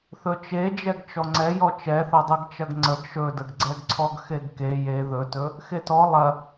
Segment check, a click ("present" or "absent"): present